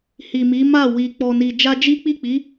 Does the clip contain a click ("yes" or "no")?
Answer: no